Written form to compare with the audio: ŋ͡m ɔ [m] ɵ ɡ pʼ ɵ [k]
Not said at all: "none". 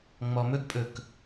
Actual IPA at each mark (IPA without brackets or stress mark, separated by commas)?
m, k